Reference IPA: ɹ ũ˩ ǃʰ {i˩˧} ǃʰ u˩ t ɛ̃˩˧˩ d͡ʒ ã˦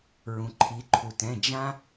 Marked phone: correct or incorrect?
correct